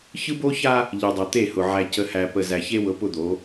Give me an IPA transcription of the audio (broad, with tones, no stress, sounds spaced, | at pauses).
ç ɯ˦ b o˦ ç a˦ | ʎ ɯ˨ dˤ ɤ˨ t̪ e˦˨ h ʊ˨ ʕ æ˨ c ə˨ h æ˨ p ə˨ z æ˨ ç e˦ w ɤ˨˦ p ʊ˦ d̪ o˨˦